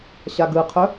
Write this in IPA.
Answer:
ɕaɡɯqʰɵ

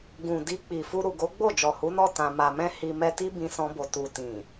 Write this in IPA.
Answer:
ɡũ˨ di˧k͡pi˨fu˧ ɾu˨ɡo˨˦ɡ͡bo˦˨ d͡ʒɔ˨hu˨˦nɔ˦˨ tã˨ ma˨mɛ̃˧ hi˧mɛ˦ ti˦bĩ˧sɔ̃˧bo˨ tu˨tĩ˨

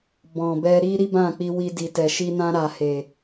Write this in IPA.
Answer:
bɔ̃˨bɛ˧ ɾi˦ɾi˦bã˦˨k͡pi˧ wi˧ di˨tɛ˨ʃi˧nã˧ ɾa˨he˨

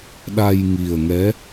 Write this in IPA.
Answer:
ɗa˧jŋi˨˩ə̯ŋɛ˧˥

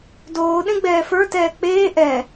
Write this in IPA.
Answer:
doː ɗẽɡ͡bɛːfə˞ tɛːk͡peː ʔɛ

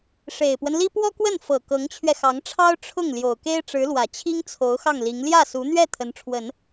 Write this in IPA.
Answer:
ʂe˨˩ɪ̯pwə˦nli˥ pwɔ˥kwə˥˩n fɤ˨˩ kɤ˧˥ŋt͡ɕʰɥɛ˧xɑ˧˥ŋʈ͡ʂʰɑ˥ʊ̯ ʈ͡ʂʰʊ˥˩ŋ ljo˨˩ʊ̯ke˥ɪ̯ʈ͡ʂɻ̩˧˥lwä˨˩ t͡ɕʰi˥ŋt͡sʰo˧˥ʊ̯ xɑ˥˩ŋli˧˥ŋ ljä˥˩su˧˥n̪ɥɛ˥˩ t̪ʰə˧˥nʈ͡ʂʰwə˨˩˦n

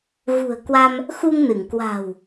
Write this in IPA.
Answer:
ɣṳ˨˩ə̯ kwa˧m | xu˧ŋnɨ˧˩ŋkwa̤˨˩w

